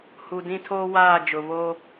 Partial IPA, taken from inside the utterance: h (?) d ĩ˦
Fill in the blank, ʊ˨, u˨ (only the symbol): u˨